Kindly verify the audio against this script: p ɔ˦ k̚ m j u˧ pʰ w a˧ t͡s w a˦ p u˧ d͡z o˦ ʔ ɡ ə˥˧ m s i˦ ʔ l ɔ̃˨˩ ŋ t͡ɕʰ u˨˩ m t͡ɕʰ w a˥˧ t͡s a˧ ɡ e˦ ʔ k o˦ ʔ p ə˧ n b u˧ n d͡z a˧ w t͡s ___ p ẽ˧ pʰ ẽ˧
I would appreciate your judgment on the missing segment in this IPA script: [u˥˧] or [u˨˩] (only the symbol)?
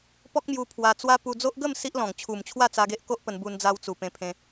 u˨˩